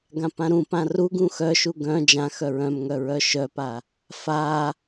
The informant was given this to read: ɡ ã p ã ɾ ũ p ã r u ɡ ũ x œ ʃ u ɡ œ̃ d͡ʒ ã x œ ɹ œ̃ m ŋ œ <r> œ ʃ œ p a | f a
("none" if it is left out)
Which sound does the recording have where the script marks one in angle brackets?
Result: ɹ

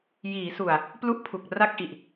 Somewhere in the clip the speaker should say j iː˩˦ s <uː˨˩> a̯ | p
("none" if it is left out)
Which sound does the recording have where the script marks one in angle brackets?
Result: u˨˩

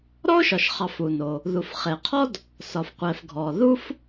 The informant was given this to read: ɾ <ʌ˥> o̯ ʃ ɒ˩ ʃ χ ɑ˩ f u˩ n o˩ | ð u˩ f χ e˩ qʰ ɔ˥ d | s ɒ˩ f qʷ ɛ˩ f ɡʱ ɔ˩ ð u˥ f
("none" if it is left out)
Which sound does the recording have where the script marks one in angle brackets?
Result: ɔ˥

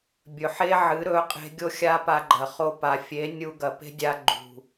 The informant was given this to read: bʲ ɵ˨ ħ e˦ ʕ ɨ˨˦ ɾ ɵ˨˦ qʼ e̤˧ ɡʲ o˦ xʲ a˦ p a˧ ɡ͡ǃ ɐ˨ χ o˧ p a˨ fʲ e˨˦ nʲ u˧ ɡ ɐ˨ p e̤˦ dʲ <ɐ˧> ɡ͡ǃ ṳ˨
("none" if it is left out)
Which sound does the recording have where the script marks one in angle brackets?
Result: a˧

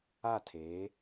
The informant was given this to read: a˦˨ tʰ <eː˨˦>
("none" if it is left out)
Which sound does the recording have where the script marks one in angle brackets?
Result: eː˨˦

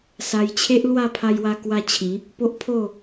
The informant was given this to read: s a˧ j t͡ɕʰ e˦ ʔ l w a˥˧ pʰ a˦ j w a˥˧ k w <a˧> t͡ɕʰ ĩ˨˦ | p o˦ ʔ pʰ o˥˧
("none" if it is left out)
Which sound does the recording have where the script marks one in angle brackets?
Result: a˥˧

